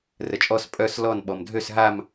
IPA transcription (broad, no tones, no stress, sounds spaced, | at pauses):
r ə t͡ʃʼ ɔ s pʼ œ s l ɔ n ɓ ɔ m dʱ ø s ɦ a m